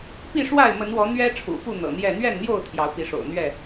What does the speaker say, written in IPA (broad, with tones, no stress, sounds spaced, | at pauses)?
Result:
p i˥˨ ʂ w a˥˨ ɪ̯ m ə˨˦ n w ɔ˨˦ n̪ ɥ ɛ˦ ʈ͡ʂʰ ṵ˨˩ f u˥˨ n̪ ɤ̰˨˩ n̪ j ɛ˥˨ n̪ ɥ ɛ˥˨ n n̪ j o˥˨ ʊ̯ t̪ʰ j ɑ˨˦ ʊ̯ p i˨˦ ʂ o̰˨˩ ʊ̯ n̪ ɥ ɛ˥˨